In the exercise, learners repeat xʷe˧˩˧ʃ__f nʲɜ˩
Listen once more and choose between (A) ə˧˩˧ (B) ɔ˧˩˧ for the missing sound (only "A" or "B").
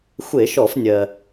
B